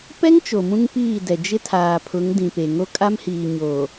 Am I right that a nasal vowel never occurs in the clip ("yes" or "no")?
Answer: no